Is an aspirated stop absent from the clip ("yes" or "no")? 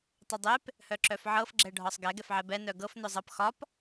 yes